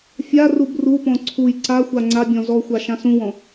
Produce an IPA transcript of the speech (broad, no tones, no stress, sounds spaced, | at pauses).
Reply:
fʲ a r u b r u p ɔ̃ ǀʰ u j ǀ a xʷ a ŋ͡ǀ a bʲ ɔ̃ z ɔ xʷ a ʃ ã s ũ w ɔ̃